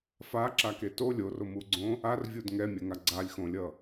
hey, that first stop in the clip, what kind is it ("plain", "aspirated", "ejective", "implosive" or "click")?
click